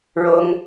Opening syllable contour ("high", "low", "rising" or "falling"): high